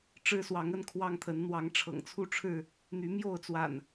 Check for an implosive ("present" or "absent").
absent